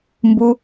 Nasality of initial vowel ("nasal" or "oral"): oral